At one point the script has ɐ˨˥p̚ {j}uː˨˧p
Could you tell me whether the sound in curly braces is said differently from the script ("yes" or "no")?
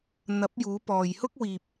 no